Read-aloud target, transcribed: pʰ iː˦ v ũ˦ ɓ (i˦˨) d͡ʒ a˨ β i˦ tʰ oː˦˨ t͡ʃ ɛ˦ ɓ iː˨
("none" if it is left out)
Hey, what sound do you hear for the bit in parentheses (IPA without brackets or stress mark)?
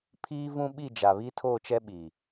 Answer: i˦˨